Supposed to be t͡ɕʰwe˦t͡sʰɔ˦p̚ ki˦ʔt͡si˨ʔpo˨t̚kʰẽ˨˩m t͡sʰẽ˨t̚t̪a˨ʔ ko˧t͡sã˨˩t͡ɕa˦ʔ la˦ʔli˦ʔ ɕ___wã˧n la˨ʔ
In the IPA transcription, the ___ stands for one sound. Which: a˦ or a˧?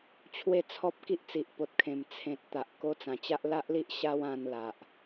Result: a˦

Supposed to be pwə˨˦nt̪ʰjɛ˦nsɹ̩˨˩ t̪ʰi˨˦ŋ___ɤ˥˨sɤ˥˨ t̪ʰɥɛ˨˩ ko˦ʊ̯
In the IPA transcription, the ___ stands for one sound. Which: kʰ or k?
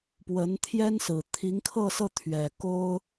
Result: kʰ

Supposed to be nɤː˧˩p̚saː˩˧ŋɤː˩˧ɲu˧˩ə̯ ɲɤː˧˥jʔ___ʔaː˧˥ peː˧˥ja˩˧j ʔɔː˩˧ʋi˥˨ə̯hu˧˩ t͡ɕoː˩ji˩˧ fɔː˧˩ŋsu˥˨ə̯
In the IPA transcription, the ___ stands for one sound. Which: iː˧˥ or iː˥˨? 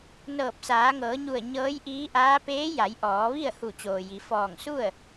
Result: iː˧˥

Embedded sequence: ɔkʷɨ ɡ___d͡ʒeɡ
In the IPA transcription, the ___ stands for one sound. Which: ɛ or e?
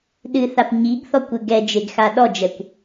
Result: ɛ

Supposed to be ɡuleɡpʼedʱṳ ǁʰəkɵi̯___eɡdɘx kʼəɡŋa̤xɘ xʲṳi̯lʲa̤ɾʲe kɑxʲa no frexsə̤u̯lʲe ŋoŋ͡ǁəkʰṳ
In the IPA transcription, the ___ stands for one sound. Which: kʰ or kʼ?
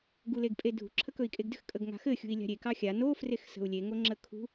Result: kʼ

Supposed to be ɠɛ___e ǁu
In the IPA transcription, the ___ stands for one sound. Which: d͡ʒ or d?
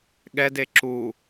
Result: d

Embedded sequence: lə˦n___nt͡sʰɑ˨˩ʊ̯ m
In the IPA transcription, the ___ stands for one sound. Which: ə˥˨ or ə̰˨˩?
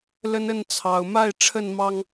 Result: ə˥˨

